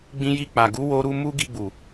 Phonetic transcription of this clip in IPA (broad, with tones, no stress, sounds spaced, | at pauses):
ɡ͡b ĩ˧ j i˧ k͡p a˨ ɡ u˨˦ w o˧ ɾ u˧ m u˦ ɡ i˧ ɡ͡b u˨